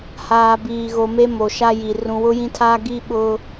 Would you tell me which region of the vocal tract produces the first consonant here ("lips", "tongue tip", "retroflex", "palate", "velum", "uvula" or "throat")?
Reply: throat